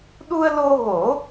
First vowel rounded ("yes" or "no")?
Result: yes